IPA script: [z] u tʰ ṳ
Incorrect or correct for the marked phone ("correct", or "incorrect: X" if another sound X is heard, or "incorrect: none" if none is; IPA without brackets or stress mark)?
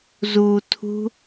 correct